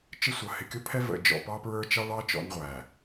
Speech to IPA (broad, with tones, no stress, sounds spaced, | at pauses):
t͡ʃ ɪ˦ sʷ ʌ˨ h ɪ˨ kʲ ʊ˦ pʰ ɛ˦ v ə̰˨ d͡ʒ ɔ̰˨ p ɑ˦ p ɹ ə˞˦ t͡ʃ ɑ˦ ɭ ɑ˦ t͡ʃ ɔ̰˦ n ʁʷ æ˨